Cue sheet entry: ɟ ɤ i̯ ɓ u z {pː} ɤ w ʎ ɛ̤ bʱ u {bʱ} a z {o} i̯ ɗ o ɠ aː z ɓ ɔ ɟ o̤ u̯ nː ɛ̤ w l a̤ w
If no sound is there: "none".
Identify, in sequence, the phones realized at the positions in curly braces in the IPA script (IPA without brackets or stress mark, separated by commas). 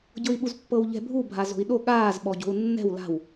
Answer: pː, bʱ, o̤